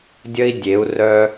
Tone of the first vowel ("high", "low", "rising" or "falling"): high